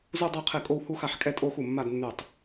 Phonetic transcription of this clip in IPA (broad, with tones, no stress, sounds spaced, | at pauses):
z u˥˧ dˤ ɜ˥˧ qʰ ɛ˥˩ kʼ o˥˧ w h u˥˧ x a˥˩ ħ kʼ ɛ˥˧ tʼ o˥˧ x u˥˩ mː a˥˧ d nː ʉ˥˩ tˤ